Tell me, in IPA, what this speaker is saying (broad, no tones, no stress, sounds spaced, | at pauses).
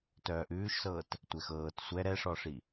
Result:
t œː ʔ ʉː ʃ s ɤː t | tʷ ɛ x ɤː t sʷ ɛ ɾ ɛ ʂ ɔ ʂ i